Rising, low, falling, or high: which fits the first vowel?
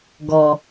low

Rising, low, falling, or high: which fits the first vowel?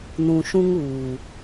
low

